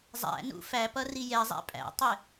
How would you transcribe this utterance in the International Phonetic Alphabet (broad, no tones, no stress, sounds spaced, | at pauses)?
zˤ æ̰ n ṵ f æ p ʌ r i j ɛ zˤ æ̰ pʼ æ̰ tˤ ɪ